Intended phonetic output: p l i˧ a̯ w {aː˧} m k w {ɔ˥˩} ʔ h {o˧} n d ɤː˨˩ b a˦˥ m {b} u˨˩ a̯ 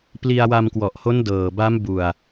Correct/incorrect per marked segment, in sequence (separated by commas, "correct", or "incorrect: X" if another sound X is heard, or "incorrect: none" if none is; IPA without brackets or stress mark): incorrect: a˧, incorrect: ɔ˨˩, incorrect: o˦˥, correct